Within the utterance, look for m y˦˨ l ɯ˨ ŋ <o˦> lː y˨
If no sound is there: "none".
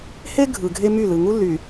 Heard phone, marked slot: u˦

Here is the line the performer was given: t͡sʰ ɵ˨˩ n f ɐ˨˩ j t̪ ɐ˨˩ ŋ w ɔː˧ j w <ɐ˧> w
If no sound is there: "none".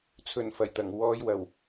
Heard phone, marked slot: ɐ˨˩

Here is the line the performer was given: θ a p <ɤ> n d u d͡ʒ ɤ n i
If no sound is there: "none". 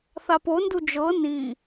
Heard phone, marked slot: o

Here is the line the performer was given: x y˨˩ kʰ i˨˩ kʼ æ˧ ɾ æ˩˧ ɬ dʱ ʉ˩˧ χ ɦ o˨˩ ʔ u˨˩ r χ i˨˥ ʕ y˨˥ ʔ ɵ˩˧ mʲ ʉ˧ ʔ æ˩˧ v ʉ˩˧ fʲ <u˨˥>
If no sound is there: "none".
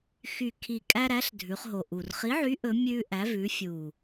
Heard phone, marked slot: u˨˩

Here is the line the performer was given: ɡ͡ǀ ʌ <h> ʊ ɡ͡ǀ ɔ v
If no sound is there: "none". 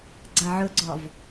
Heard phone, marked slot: ʕ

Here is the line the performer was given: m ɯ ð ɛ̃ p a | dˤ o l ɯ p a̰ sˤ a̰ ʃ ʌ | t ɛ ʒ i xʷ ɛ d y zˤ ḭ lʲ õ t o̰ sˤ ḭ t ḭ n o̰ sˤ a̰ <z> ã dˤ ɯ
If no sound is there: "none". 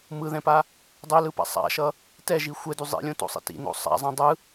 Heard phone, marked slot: zˤ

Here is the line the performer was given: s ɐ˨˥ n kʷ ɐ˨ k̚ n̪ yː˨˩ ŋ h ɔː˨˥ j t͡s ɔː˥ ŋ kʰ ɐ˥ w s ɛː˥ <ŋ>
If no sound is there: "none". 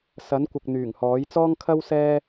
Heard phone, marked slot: none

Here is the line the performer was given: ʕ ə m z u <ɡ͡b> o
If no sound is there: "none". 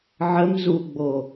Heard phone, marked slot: ɡ͡b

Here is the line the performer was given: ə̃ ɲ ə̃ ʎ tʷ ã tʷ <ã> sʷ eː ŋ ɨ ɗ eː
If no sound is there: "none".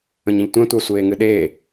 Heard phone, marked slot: a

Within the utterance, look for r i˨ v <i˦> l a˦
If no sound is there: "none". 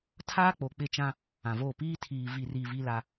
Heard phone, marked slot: i˦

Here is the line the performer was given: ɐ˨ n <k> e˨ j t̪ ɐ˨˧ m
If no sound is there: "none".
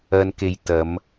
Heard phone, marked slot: k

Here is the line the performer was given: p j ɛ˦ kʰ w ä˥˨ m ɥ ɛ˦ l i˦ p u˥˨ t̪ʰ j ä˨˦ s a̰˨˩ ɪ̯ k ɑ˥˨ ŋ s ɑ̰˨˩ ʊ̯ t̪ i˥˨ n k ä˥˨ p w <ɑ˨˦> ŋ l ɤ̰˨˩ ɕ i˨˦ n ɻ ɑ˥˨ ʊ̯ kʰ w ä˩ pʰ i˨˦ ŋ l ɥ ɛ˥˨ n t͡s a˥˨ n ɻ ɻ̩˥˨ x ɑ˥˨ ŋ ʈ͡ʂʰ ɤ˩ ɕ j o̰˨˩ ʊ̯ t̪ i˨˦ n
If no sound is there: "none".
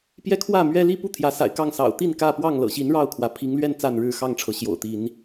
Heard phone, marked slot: ɑ˥˨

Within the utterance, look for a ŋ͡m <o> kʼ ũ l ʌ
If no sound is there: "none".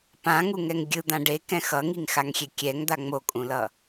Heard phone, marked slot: o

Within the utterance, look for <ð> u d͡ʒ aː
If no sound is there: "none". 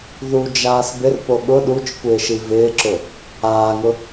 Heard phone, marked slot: ð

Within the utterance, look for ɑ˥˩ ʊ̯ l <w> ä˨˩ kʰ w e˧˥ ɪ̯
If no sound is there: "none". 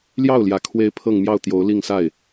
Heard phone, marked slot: j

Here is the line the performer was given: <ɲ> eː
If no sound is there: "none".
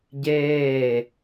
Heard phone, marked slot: ɟ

